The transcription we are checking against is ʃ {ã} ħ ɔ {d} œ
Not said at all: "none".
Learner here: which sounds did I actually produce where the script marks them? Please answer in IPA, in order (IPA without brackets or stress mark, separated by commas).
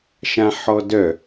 ã, d